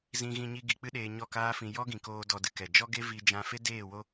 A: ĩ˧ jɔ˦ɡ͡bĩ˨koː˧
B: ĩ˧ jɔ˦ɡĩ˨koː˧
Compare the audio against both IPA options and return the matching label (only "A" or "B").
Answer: B